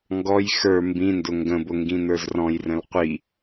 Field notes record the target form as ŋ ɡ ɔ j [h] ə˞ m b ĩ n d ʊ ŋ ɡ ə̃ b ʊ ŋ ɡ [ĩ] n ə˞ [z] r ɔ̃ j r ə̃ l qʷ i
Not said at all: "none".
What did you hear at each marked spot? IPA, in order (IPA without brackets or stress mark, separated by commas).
x, ĩ, z